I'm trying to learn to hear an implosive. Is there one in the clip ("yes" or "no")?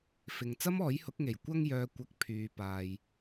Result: no